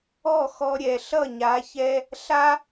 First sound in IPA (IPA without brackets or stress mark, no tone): ɔ